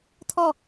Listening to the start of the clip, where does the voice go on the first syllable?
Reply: falling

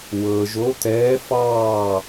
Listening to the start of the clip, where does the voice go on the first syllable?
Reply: low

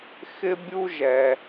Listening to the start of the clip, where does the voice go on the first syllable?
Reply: high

